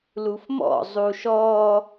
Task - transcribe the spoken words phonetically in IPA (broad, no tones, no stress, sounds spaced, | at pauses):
l u f m ɔ̰ zˤ u ʃ ɔ